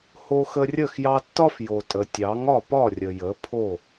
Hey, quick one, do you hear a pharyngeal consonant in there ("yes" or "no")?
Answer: no